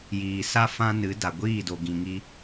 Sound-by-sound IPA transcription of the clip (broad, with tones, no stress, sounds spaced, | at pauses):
j iː˨ s a˦ f ã˦ n ɨ˨˦ d a˨ ɡʷ iː˦˨ d o˨ ɡ ĩ˨ ŋ i˧